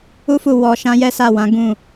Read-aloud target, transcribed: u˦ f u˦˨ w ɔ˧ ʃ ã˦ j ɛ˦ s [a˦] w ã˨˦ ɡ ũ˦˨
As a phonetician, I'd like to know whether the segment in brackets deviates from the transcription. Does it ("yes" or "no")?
yes